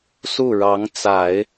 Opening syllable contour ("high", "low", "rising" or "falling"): falling